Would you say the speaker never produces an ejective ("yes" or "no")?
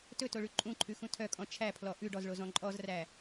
no